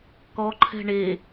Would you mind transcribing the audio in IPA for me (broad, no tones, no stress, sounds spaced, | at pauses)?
k ɔ ǃʰ ɛ̤ ɳ e